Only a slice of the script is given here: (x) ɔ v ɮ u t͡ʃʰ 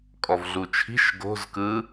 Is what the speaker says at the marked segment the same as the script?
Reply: no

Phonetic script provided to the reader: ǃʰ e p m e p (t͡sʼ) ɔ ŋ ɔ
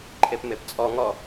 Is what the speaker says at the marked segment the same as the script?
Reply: yes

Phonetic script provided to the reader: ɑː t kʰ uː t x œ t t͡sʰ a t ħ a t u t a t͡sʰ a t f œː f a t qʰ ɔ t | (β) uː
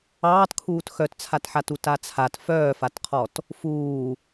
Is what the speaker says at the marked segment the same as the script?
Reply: no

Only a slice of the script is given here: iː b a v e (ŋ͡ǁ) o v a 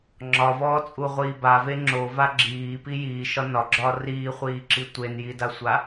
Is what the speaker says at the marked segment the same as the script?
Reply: yes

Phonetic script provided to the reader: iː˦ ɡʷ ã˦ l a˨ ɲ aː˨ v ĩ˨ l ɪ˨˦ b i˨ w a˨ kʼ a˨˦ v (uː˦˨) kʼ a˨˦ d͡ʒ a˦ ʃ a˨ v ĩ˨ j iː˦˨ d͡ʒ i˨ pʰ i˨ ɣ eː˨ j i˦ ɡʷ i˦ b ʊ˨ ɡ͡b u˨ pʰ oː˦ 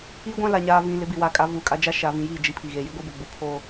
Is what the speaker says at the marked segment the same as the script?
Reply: no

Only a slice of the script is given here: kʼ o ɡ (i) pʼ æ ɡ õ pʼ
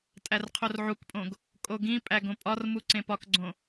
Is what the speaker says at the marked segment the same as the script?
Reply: no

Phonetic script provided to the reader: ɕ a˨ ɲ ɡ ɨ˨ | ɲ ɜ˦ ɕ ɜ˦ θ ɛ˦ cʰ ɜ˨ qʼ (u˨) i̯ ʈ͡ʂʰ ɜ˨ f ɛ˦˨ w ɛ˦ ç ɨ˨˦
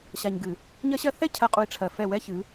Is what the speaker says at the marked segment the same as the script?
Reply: yes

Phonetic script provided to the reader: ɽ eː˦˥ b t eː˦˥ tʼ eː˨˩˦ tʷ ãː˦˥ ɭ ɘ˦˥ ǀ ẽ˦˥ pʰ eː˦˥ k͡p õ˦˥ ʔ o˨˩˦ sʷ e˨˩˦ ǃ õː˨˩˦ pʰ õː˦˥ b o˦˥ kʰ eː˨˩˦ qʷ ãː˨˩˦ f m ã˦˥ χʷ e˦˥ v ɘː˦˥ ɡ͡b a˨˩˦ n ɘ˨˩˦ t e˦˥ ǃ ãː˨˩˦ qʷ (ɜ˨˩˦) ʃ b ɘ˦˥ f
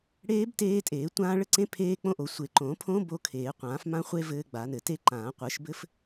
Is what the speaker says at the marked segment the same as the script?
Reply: no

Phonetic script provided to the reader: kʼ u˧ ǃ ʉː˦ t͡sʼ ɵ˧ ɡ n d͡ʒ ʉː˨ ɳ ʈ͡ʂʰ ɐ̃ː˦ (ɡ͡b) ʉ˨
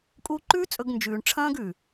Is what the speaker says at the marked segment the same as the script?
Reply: no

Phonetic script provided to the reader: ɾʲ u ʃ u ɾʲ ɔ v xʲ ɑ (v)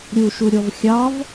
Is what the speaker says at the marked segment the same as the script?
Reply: yes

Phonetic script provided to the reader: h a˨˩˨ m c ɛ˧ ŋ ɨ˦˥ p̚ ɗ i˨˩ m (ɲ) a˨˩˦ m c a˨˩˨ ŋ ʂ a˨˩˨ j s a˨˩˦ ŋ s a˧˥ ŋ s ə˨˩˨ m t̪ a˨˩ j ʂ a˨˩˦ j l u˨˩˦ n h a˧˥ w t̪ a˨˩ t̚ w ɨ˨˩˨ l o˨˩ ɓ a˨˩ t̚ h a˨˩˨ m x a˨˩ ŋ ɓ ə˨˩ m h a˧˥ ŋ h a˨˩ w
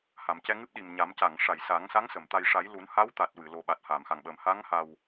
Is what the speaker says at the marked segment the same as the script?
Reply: yes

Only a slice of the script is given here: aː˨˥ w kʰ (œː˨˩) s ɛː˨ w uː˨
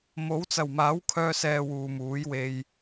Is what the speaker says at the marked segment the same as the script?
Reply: no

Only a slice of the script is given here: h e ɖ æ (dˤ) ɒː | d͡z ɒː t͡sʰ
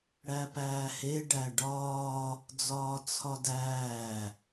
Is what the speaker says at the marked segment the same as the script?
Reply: no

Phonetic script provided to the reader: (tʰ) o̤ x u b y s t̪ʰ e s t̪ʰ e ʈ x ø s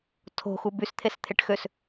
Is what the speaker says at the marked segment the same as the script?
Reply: yes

